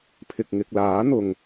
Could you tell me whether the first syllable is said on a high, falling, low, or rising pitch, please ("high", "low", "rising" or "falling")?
low